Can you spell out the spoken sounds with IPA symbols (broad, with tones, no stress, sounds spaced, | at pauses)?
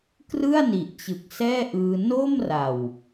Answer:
k r ɯ˥˩ a̯ n i˨˩ ʔ t͡ɕ ɯ˨˩ k̚ s ɛː˥˩ ʔ ɯː˧ n o˥˩ m r a˨˩ w